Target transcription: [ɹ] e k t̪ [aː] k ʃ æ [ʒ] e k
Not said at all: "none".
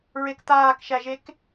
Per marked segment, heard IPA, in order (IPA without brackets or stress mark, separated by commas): ɹ, aː, ʒ